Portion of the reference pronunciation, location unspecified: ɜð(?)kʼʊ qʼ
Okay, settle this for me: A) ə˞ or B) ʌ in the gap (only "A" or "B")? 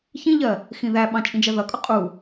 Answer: B